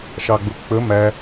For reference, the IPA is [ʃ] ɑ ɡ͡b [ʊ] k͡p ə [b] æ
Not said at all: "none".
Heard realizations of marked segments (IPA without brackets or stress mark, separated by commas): ʃ, ʊ, m